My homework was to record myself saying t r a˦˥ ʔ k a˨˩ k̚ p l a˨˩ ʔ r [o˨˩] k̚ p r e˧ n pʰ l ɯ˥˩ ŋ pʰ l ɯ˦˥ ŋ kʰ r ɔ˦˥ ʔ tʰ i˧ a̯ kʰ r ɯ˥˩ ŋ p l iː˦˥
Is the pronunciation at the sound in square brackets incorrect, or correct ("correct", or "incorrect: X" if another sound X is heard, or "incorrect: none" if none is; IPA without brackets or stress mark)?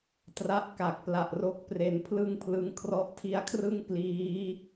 incorrect: o˦˥